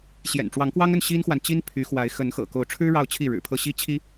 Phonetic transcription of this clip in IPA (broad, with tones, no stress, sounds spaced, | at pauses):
ɕ j ɛ̰˨˩ n ʈ͡ʂ w ɑ˧˥ ŋ k w ɑ˥ ŋ ə˥˩ n ɕ i˥ n x w a˨ n t͡ɕ i˥ n pʰ y˧˥ x w a˧˥ ɪ̯ x ə˧˥ n x ɤ̰˨˩ k o˧˥ ʊ̯ ʈ͡ʂʰ ɻ̩˥ ɻ ɑ˥˧ ʊ̯ t͡ɕʰ i˥˩ ɻ ɻ̩˨˩ pʰ ɤ˥˩ ɕ i˥ t͡ɕʰ i˥